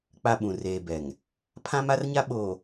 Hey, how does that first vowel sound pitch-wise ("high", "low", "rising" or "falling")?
high